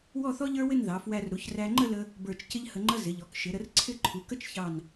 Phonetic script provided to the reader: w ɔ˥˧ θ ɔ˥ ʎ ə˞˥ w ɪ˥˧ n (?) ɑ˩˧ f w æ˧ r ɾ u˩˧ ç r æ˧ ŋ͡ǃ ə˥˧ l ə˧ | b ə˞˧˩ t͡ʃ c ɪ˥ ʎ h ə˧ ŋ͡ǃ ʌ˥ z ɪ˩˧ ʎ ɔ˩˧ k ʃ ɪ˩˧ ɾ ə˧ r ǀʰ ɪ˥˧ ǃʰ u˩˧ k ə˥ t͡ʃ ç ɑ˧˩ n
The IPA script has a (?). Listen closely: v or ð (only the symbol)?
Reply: ð